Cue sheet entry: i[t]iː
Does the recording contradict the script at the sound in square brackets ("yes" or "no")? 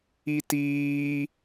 no